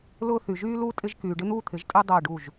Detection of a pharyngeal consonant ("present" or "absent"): absent